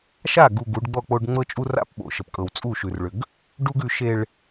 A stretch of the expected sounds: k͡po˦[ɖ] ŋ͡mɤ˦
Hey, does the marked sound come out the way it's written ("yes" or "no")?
yes